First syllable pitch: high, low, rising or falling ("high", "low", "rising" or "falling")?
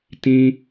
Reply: high